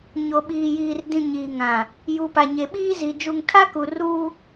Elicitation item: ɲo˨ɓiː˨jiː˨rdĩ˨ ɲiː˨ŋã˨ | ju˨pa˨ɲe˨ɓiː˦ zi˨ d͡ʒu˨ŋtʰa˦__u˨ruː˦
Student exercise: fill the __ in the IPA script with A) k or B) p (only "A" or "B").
A